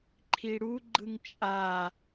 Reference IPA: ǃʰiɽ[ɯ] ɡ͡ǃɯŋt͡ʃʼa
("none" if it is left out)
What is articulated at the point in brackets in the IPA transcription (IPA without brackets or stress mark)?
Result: u